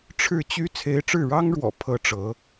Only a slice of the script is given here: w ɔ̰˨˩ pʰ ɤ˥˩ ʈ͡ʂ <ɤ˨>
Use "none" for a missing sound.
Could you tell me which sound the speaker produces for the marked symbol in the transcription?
ɤ˧˥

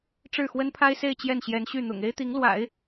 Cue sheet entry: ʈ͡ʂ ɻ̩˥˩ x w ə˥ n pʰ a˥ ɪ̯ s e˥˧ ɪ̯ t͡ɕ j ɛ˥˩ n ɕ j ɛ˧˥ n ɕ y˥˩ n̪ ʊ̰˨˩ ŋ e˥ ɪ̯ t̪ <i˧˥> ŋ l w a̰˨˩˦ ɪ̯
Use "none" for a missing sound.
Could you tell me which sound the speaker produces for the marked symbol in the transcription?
i˧˥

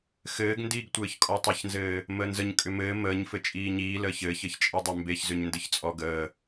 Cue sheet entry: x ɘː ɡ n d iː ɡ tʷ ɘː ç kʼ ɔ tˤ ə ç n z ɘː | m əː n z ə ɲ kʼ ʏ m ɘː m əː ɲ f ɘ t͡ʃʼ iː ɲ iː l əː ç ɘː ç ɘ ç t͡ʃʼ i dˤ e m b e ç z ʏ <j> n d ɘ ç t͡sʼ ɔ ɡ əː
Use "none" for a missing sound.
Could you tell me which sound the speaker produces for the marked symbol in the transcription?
ɲ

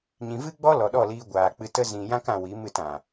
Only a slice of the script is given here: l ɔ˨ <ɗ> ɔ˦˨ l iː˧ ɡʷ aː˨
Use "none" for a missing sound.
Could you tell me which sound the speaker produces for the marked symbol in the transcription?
ɗ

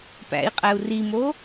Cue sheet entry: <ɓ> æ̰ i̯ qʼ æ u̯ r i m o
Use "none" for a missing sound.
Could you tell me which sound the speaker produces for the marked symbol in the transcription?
p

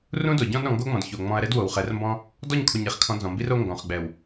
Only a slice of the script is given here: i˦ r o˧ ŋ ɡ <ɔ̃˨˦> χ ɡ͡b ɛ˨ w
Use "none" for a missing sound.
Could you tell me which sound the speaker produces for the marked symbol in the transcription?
ɔ̃˨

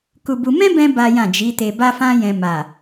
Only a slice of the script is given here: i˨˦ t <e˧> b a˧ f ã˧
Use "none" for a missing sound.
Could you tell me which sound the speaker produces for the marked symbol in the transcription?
e˧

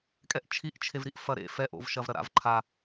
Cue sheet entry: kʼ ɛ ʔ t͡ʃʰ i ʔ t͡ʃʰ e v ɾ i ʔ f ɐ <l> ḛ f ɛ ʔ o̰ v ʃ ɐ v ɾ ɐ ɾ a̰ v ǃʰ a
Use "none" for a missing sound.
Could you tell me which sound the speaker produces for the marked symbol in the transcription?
ɾ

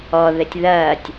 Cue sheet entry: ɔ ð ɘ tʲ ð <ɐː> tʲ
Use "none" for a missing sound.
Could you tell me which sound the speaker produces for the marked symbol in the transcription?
ɐː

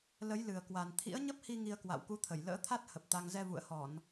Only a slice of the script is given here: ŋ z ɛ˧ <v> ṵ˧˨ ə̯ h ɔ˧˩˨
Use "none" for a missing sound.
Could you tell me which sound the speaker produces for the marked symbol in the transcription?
v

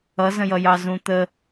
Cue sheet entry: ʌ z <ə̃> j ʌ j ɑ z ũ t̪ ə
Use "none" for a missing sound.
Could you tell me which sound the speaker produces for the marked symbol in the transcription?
ə̃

